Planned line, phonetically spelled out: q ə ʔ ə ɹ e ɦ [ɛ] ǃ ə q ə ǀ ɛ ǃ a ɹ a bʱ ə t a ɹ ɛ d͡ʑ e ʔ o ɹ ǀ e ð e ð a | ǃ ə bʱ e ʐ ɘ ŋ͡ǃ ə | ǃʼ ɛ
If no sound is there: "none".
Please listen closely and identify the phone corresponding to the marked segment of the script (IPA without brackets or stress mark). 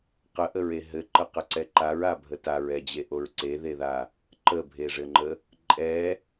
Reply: ɘ